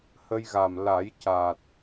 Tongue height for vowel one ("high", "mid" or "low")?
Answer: mid